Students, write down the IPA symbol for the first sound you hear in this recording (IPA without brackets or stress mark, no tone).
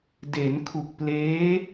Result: d